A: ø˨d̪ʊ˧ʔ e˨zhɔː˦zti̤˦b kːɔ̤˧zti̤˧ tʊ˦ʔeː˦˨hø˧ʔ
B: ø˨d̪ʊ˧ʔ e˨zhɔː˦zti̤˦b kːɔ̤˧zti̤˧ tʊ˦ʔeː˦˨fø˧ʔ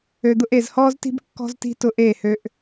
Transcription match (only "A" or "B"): A